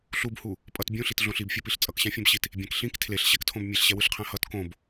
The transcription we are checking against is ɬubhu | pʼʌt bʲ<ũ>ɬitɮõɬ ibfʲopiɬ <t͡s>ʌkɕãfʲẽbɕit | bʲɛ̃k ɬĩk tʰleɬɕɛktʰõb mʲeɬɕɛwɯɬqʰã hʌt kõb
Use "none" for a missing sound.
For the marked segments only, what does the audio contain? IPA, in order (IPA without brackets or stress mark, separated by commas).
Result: ũ, t͡sʼ